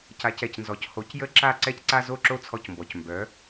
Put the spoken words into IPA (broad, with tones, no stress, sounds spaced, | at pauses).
c a˩˥ c ɛ˩ c n z ɔ˩ c h o˩˥ c j ə˥˩ ǁ a˥˩ ǀ ɛ˥ c ǀ a˥ z o˥˩ ǁ o˥ t͡sʰ ɔ˧ c m b ɔ˩ c m b œ˩˥